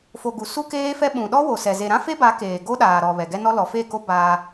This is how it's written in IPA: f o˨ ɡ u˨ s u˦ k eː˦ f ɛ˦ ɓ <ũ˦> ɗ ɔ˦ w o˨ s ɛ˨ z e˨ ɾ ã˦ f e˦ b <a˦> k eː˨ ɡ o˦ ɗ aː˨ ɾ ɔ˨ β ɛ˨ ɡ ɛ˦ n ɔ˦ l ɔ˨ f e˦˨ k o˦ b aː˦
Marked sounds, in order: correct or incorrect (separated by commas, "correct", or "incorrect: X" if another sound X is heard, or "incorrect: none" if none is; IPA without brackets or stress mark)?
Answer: incorrect: ũ˨, incorrect: a˨˦